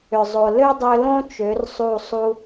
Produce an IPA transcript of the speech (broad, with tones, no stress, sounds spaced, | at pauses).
ʏ˨ zˤ o˨ l ø˦ dˤ ø˧ l õ˦ t͡ʃ ø˨˦ r sˤ u˦˨ sˤ u˦